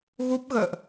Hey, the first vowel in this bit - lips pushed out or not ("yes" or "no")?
yes